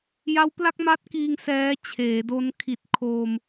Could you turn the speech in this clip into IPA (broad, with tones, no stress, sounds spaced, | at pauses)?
j a˦˥ w p l a˥˩ k̚ m a˦˥ t̚ k iː˧ ŋ s ɛː˦˥ t͡ɕʰ eː˩˦ d o˦˥ n kʰ i˨˩ t̚ kʰ oː˧ m